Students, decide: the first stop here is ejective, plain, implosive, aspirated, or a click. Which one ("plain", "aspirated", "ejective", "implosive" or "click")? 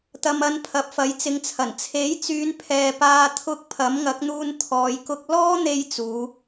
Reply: plain